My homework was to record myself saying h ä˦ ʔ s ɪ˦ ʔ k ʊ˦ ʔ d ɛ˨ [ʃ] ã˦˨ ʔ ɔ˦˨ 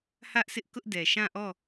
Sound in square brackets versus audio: correct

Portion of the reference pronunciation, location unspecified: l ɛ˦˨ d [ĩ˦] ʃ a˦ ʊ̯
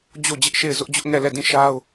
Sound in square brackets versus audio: incorrect: ĩ˦˨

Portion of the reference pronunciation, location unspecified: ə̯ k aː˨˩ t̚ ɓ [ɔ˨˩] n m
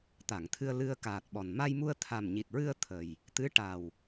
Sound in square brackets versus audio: correct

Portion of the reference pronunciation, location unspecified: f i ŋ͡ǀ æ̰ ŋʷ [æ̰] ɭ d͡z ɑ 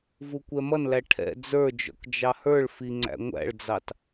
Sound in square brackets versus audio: correct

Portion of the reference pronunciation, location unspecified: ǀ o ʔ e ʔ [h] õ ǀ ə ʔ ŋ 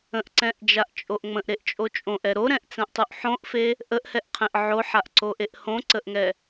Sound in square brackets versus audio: correct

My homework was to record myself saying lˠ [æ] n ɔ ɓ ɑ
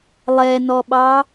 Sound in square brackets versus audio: incorrect: ɛ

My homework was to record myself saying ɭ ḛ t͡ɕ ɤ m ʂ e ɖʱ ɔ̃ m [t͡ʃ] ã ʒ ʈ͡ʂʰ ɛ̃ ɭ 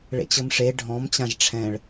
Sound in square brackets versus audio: incorrect: t͡ɕ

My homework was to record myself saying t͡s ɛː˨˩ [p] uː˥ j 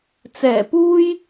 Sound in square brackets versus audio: correct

